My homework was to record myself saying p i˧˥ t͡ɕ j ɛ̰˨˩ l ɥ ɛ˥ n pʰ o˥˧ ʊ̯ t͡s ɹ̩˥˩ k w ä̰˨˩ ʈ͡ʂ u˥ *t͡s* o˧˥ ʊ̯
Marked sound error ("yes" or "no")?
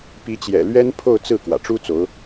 no